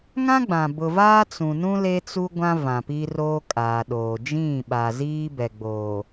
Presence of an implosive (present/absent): present